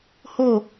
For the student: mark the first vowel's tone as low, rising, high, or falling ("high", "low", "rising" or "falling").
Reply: falling